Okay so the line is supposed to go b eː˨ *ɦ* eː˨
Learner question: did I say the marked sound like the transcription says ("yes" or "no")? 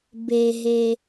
yes